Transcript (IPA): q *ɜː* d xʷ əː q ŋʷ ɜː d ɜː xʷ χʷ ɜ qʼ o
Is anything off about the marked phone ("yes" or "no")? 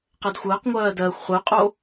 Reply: yes